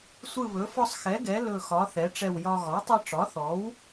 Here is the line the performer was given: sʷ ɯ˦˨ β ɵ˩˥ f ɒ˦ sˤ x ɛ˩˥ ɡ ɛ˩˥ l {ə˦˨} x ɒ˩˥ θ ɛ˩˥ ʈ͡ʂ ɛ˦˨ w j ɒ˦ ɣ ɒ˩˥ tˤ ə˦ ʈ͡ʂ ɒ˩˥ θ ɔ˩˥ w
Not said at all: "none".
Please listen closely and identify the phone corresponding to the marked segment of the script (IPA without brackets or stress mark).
ɵ˦˨